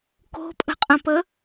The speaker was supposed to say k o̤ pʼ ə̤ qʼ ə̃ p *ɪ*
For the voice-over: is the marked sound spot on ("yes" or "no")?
no